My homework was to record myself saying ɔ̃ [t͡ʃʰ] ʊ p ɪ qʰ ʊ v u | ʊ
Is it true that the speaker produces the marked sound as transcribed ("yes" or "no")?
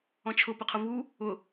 yes